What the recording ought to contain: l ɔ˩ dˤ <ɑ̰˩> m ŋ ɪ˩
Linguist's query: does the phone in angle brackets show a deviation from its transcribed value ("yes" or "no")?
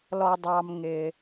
yes